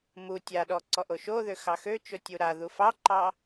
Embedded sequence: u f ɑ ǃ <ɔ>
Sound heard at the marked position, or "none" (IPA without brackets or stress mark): ɑ